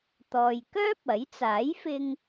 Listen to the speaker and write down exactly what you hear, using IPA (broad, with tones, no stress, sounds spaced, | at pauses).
t̪ ɔː˨ j k œː˥ p̚ ɐ˨˥ j t͡s aː˨˥ j f ɪ˧ ŋ